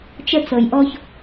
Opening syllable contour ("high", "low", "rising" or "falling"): high